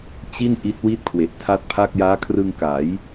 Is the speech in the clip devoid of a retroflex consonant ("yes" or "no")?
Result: yes